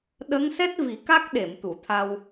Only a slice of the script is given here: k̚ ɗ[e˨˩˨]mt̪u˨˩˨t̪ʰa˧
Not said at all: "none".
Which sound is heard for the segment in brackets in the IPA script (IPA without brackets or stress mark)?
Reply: e˨˩˨